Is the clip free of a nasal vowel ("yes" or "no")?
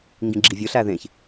no